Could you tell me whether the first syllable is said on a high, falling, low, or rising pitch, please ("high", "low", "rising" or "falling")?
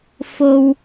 high